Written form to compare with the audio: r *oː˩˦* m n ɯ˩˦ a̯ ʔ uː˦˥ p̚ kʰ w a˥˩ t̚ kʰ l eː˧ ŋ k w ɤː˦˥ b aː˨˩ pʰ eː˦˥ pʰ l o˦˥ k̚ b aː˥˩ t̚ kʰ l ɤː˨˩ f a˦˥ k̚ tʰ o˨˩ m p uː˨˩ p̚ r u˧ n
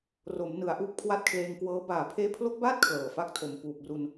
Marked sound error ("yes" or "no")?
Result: yes